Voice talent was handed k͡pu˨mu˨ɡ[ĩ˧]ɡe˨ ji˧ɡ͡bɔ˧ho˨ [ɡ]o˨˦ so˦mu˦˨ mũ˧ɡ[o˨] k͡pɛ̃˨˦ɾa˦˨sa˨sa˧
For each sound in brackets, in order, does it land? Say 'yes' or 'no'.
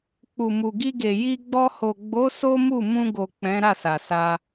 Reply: no, no, yes

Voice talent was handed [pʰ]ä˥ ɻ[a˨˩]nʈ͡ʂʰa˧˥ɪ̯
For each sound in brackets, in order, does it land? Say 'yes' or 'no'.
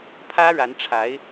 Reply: yes, no

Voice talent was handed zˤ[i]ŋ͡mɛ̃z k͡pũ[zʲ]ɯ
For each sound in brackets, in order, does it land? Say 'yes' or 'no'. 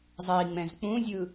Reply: yes, yes

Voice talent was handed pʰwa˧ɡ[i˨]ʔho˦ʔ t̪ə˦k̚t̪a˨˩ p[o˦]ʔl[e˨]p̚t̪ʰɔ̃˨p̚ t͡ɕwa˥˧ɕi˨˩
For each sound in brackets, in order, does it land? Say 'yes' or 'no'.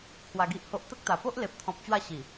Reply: no, yes, yes

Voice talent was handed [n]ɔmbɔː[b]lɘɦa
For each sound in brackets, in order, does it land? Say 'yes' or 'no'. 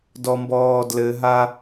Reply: no, no

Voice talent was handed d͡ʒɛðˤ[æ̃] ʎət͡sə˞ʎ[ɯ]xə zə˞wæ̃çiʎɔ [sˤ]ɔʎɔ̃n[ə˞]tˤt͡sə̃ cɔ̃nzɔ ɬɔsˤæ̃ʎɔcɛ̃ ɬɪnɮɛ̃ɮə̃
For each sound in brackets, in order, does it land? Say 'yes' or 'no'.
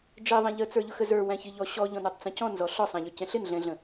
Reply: yes, no, no, yes

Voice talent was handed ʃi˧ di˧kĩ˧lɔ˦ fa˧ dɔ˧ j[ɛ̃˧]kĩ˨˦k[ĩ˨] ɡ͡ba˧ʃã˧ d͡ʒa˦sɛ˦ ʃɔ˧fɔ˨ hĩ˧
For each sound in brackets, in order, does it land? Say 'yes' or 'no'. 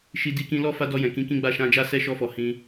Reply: no, no

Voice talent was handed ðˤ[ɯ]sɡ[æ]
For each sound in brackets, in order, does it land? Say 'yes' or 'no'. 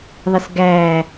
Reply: no, yes

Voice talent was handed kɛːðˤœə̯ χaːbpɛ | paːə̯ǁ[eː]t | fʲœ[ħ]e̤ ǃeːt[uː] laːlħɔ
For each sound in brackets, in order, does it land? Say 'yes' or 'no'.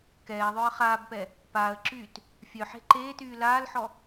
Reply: no, yes, no

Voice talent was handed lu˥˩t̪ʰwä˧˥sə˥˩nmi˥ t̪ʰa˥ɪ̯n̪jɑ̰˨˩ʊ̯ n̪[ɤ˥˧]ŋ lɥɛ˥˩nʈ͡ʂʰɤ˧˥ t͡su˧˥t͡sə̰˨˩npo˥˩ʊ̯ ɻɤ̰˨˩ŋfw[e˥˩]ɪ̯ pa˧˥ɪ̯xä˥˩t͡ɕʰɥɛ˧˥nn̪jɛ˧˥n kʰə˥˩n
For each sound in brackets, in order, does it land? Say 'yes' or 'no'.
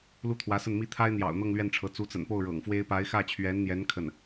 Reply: yes, no

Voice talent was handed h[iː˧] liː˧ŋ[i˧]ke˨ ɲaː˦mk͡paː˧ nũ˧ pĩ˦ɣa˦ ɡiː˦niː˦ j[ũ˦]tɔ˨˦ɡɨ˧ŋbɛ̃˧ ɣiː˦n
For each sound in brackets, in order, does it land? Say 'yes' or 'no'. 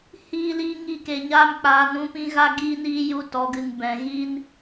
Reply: yes, yes, no

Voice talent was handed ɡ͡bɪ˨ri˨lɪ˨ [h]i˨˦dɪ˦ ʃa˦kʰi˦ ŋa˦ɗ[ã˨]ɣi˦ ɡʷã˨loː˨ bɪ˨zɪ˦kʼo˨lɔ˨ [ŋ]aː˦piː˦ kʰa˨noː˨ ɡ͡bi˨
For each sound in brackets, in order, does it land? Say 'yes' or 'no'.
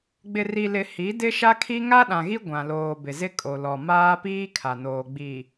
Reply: yes, yes, no

